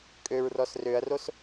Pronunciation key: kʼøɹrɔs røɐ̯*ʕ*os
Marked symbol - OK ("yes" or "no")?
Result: no